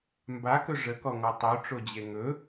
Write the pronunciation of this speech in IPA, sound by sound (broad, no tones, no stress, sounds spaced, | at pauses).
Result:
m b a k ɵ ʐ ə k ɔ ŋ ɔ tˤ o ʈ͡ʂ o d͡ʑ e ŋ ɵ